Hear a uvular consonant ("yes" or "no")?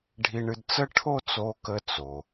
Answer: no